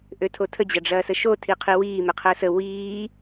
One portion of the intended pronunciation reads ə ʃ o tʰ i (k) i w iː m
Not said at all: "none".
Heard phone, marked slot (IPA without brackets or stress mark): qʰ